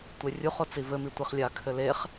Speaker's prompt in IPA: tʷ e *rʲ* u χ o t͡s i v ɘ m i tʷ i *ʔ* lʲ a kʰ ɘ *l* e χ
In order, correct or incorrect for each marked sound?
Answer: correct, incorrect, correct

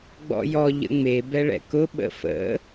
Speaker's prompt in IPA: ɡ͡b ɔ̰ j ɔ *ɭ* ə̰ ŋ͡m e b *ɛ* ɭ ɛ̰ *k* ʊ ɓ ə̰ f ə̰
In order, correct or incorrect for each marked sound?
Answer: incorrect, correct, correct

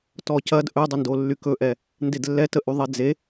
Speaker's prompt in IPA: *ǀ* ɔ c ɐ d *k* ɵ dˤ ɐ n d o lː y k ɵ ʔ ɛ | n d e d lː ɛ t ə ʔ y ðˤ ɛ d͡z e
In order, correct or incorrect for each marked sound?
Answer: incorrect, incorrect

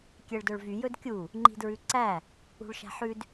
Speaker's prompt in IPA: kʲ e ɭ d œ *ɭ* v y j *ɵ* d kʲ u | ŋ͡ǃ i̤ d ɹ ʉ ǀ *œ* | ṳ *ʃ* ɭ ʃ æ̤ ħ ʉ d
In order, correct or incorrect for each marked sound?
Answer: correct, correct, incorrect, incorrect

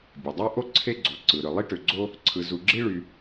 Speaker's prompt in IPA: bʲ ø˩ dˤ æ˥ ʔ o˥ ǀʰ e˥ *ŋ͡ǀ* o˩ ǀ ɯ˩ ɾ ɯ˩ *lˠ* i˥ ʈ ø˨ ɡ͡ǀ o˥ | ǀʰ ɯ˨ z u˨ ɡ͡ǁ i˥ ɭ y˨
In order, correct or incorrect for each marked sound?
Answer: incorrect, correct

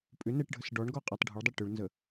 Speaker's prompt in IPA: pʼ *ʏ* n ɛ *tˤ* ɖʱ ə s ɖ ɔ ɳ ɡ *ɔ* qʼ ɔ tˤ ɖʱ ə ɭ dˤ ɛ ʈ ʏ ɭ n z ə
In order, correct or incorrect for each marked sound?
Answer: correct, incorrect, correct

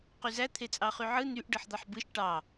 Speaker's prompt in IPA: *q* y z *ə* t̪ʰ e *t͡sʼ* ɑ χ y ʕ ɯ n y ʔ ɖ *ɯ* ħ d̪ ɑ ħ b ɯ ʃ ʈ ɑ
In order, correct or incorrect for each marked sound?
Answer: correct, incorrect, correct, correct

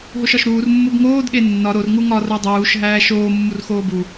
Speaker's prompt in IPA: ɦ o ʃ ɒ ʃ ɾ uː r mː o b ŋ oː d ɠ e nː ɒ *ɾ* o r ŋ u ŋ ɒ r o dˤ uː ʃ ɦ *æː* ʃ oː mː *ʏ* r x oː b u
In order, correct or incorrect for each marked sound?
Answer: correct, correct, incorrect

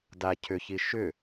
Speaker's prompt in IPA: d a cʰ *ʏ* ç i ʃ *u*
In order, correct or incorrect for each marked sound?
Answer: correct, incorrect

